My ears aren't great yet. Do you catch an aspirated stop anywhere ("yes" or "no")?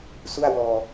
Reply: no